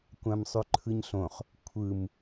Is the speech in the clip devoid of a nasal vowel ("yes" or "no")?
no